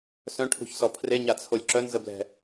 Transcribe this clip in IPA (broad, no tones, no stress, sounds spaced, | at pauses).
s œ̃ ʈʰ ṳ ç s ɔ pʰ r e ɲ a t͡sʰ o lʲ ǁ œ n z ə b l ɛ̤